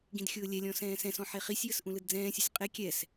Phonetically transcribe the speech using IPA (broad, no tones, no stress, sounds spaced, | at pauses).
ɡ ĩ d xʲ ʊː lʲ ɛ lʲ ɔ̃ s ɛ̃ː s ɛ̃ s ɔ̃ ħ e χ i sʲ j ə s ʔ ũ l ɯ d d͡z ɛ̃ː sʲ ʊ sʲ qʼ e kʲ ɛ s